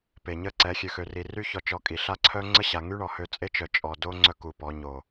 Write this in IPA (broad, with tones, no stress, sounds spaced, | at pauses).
p e˨ ɲ ə˦˨ ǀ ɛ˨˦ xʲ ø˨ x ø˨ r i˨ r y˦ ç ɔ˨ t͡ʃ ɔ˨ kʼ i˨ ɬ a˦ ǀʰ œ˦ ŋ͡ǀ ə˦ ɕ a˨ ŋ y˦ ɳ ɔ˨ h ø˦˨ t͡sʼ e˦ t͡ʃ œ˨ t͡ʃʼ ɔ˨ d o˦ ŋ͡ǀ œ˦ k u˨ p ɔ˨˦ ɲ o˨